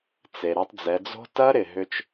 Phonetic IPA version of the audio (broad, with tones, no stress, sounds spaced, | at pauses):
t͡s e˩ ɾ ɛ˧ tˤ d͡z ɛ˩˧ d͡z o̤˦˥ t ɐ˦˥ ɾ ɪ˩ ɦ ʏ˧ t͡ʃ